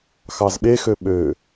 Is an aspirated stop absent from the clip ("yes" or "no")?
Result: yes